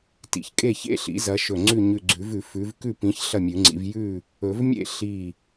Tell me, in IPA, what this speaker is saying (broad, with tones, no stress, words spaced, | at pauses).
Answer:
tḭ˧˩çkʼe˥˨çḛ˥˨ɬḭ˨˩˦ zɐ˨˦ʃɵ˧˩ ŋ͡ǀʉ˥˨ɲʉ˧˩ɡ͡ǀʉ˨˩˦vʉ˨˩˦ fʉ˨˦v kʉ˥˨pĩ˨˦ç ɬɐ˥˨mʲʉ˨˩˦ŋ͡ǀḭ˨˦v jʉ˥˨ | ɵ˨˩˦v mʲḛ˥˨ ɬi˧˩